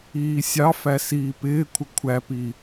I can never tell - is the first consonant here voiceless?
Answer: yes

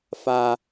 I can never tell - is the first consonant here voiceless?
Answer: yes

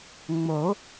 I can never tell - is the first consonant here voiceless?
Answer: no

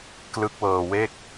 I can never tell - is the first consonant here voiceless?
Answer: yes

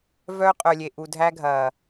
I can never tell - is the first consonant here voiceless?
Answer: no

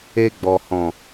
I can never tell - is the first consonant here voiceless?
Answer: no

